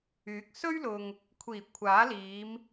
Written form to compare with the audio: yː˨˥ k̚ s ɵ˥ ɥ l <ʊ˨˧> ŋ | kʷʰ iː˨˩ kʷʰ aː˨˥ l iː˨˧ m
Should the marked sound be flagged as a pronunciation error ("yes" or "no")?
yes